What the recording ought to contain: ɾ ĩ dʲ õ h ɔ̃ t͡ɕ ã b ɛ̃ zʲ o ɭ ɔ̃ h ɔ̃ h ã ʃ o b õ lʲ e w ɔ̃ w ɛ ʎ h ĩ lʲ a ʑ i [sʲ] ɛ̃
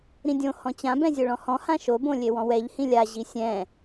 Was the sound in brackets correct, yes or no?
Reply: yes